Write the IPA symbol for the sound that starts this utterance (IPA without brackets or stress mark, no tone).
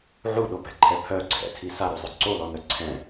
ʕ